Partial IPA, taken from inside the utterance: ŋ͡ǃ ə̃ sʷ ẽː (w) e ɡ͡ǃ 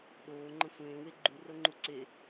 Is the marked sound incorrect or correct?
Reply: correct